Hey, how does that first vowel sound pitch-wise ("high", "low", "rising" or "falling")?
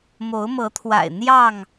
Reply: rising